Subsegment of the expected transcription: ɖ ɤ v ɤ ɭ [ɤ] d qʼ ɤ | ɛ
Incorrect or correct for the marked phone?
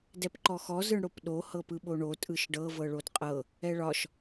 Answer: incorrect: o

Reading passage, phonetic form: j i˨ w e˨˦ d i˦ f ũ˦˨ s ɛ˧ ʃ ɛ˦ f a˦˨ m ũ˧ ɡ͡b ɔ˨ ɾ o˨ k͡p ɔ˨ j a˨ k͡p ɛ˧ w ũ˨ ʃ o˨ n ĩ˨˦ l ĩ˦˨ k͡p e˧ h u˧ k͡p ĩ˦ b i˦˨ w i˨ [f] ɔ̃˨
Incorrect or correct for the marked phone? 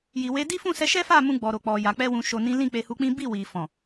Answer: correct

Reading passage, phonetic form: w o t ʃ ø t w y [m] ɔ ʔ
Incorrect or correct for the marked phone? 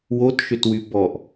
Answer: incorrect: b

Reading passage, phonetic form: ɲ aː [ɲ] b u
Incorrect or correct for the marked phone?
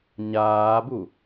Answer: incorrect: none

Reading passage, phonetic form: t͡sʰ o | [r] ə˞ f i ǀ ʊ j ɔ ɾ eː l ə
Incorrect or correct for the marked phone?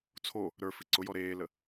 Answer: incorrect: ɾ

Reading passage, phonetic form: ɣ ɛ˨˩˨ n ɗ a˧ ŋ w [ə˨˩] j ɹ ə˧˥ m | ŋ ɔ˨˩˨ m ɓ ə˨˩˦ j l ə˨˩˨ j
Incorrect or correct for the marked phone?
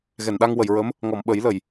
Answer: incorrect: ə˨˩˨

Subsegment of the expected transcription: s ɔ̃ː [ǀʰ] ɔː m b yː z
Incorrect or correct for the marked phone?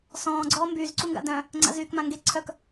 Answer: incorrect: ɡ͡ǀ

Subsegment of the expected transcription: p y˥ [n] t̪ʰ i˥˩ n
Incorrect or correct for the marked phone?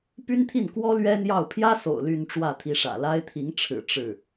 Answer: correct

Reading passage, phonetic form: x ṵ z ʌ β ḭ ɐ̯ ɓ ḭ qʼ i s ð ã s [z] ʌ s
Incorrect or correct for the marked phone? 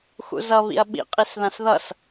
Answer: incorrect: ð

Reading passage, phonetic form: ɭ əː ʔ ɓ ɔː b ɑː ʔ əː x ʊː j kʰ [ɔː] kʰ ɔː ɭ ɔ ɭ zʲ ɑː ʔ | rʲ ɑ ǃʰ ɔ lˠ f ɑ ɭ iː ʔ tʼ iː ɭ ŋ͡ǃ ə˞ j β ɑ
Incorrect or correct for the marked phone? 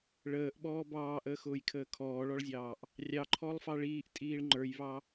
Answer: incorrect: əː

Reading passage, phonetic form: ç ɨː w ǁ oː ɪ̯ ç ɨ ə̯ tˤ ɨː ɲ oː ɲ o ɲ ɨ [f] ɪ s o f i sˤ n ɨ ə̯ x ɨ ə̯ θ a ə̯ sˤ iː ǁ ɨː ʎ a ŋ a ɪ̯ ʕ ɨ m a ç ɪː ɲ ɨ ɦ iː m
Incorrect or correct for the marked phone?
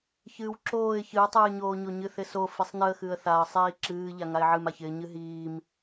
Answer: incorrect: θ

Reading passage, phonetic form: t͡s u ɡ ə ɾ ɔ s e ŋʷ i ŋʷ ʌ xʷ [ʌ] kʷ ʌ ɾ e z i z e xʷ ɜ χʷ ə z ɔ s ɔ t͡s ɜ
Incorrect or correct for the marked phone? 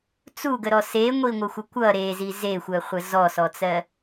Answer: incorrect: ə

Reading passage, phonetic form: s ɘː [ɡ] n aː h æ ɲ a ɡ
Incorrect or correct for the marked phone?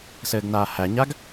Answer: correct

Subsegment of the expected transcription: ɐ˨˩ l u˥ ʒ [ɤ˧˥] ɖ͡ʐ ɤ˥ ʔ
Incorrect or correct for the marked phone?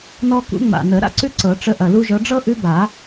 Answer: correct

